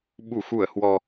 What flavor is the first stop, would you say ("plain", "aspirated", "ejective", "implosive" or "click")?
implosive